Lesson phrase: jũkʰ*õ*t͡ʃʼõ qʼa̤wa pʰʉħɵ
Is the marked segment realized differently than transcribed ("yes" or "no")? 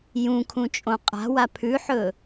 yes